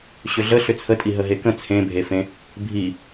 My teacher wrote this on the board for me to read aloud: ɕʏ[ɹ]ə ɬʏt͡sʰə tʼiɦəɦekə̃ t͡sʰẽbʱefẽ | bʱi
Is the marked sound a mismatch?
yes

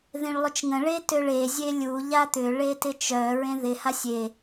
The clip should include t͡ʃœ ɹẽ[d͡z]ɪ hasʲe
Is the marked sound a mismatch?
yes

